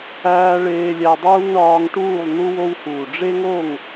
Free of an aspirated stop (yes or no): yes